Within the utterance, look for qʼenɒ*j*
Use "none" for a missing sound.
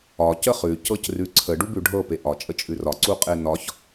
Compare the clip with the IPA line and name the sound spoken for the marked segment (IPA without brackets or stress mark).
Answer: ç